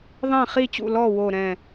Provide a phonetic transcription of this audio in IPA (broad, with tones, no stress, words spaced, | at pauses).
ðˤɛ̃˥˩χi˥˩t͡ɕṵ˥˩lɔ˥˩ wo˥˩ɾɛ̃˥˩